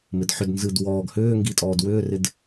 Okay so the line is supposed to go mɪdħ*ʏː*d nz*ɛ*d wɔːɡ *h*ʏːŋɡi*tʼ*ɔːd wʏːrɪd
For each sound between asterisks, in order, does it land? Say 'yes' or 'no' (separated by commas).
no, no, yes, yes